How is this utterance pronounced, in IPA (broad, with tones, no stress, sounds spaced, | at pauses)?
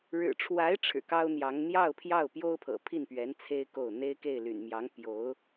ɻ ɻ̩˨˩ ʈ͡ʂʰ w a˧˥ ɪ̯ ʈ͡ʂʰ ɻ̩˨˩ k ɑ˥ ʊ̯ n̪ j ɑ˧˥ ŋ n̪ j ɑ˥˧ ʊ̯ pʰ j ɑ˥˩ ʊ̯ p j o˥ ʊ̯ pʰ ɤ̰˨˩ pʰ i˥˩ n p ɥ ɛ˧˥ n t͡sʰ e˥ ɪ̯ k o˥˩ ʊ̯ n̪ e˥ ɪ̯ k e˥˩ ɪ̯ l y̰˨˩ n m j ɑ˧˥ ŋ p j o˧˥ ʊ̯